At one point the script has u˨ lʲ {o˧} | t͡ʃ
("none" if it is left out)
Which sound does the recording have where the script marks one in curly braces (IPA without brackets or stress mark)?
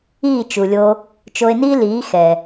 o˧